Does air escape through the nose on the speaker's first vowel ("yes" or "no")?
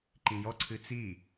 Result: yes